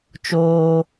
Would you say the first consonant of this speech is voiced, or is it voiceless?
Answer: voiceless